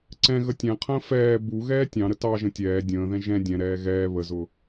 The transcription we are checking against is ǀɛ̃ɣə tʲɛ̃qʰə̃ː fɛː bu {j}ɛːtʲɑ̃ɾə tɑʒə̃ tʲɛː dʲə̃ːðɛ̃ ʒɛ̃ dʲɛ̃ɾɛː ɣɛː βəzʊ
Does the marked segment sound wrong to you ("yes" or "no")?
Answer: yes